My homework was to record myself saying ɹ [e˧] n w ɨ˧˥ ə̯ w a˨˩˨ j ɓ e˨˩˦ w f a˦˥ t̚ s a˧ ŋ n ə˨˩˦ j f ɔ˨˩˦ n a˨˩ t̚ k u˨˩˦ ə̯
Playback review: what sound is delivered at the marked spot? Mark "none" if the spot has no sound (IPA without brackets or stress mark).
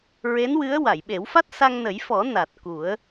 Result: e˧˥